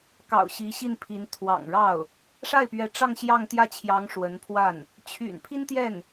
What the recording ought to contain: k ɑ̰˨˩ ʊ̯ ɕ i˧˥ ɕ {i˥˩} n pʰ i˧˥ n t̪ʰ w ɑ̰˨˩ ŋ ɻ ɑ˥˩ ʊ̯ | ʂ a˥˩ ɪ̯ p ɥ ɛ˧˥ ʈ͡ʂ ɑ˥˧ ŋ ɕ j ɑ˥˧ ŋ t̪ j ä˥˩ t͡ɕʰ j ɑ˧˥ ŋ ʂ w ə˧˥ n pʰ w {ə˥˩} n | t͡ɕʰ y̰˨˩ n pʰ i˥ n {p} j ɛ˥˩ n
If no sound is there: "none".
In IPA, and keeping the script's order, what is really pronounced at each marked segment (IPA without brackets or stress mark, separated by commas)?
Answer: i˥˩, a˥˩, t̪